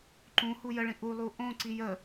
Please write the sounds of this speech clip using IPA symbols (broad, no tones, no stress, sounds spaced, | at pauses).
ǃ ũ h u j ə ɭ ĩ ʔ u lˠ u ʔ õ ǀ i j ə